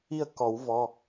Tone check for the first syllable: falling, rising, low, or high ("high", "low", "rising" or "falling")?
falling